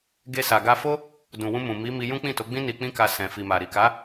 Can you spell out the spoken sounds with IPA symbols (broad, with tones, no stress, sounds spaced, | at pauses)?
ɡ e˧ s a˨ ɡ a˧ f o˦ | d ũ˨ w ũ˧ m ũ˨ m i˨˦ m i˧ j ũ˦ k͡p ĩ˦˨ t o˨˦ ɡ͡b ĩ˦ n i˧ k͡p ĩ˦ k a˧ s ɛ̃˨ f i˨ m a˨ ɾ i˨ k a˨˦